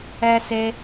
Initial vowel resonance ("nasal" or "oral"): oral